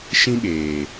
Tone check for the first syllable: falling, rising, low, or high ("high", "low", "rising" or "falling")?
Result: high